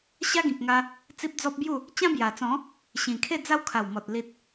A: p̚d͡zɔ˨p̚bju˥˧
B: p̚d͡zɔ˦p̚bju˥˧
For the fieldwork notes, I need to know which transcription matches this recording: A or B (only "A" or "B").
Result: B